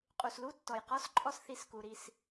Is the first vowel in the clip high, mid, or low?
high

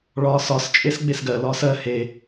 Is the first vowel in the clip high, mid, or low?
low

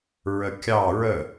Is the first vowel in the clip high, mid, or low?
mid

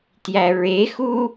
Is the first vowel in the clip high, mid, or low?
low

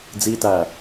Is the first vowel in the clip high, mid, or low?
high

